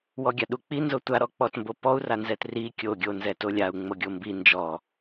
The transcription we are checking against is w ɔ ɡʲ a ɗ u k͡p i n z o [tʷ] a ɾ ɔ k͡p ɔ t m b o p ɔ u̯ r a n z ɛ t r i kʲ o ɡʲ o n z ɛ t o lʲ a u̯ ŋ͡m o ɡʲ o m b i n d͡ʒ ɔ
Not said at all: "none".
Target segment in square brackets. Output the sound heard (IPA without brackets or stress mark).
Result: tʷ